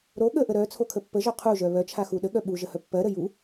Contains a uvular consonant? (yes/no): yes